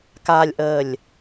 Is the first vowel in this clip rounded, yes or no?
no